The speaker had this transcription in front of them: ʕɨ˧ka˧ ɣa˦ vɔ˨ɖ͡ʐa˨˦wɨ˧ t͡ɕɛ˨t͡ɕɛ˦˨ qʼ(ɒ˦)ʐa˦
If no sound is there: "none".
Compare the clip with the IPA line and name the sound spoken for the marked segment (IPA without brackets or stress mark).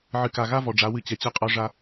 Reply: ɒ˦